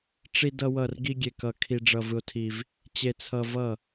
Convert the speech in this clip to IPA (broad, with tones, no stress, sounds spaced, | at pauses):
ʈ͡ʂ i˧ d ʌ˧ w ʌ˧˩ r ɡ i˧ ɡʲ e˧ k ʌ˧ kʰ i˧ ɖ͡ʐ ʌ˧ v ɯ˧ o̯ tʰ i˧ v | t͡ɕ e˧ t͡sʰ ʌ˧ v ʌ˧˩